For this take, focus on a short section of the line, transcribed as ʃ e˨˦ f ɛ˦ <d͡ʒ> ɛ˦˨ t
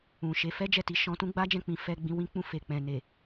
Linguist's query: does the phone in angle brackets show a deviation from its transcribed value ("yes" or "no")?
no